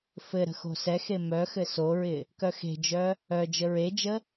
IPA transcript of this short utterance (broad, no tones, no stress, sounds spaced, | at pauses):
f ɘ ɾ ə̤ x o̤ s ɛ x e m œ x ɘ s o ɹ ɪ | k œ x e̤ d͡ʒ œ | œ d͡ʒ ə ɹ e d͡ʒ ə